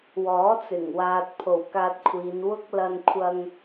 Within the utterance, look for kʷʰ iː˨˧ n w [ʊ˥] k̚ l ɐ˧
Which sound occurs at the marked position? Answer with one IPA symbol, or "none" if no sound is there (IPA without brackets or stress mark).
ʊ˥